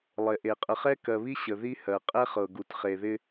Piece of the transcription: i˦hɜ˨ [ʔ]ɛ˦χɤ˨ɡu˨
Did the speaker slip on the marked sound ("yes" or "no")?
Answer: yes